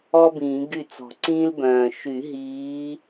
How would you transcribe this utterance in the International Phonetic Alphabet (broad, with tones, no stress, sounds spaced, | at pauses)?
ɔ˥ b ĩː˨˩˦ ɡ y˥˩ t͡s ɔ̤˨˩˦ ǀ ĩː˥ l b œ̃ː˨˩ ʃ y˨˩˦ ɦ iː˨˦